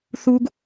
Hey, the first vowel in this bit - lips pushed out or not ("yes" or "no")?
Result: yes